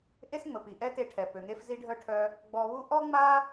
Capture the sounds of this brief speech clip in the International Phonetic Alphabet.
ʔ e˥ s ŋ͡m ə˩ p i˩ ʔ ɛ˥ t e˧ ʈʰ ɛ˩ p ø˩ ŋ e˧ f z i˧ ɖʱ œ˧ ʈʰ œ˧ | ɡ͡b ɔ˧ β u˥ ʔ ɔ˥ ŋ͡m a˥

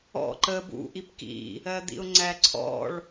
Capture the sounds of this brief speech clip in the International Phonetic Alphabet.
ɔ̰ ǃ ə b ṵ ʔ i p k ḭ | ɜ d̪ ḭ ʊ̯ ŋ͡ǀ æ ǀʰ ɔ̰ ɭ

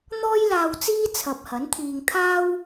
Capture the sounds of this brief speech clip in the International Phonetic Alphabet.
n̪ ɔː˧ j l aː˨ w t͡s iː˧ t͡sʰ ɐ˨ p̚ h ɐ˨˥ n t̪ʰ iː˧ ŋ t̪ʰ aː˥ w

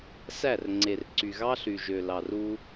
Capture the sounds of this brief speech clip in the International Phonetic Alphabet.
s æ˦˨ r ŋ͡ǀ e˨ r ǀ y˨ ɣ ɑ˦ ɬ y˨ ʒ ø˨ l ɑ˨ r u˦

